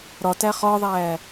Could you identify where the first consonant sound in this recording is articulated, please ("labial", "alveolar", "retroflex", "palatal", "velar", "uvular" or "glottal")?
alveolar